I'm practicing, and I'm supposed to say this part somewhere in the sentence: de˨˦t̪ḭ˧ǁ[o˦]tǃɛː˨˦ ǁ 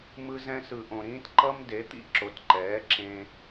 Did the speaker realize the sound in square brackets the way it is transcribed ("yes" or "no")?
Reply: no